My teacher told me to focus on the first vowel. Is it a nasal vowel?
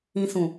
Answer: yes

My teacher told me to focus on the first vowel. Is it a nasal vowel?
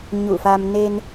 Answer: no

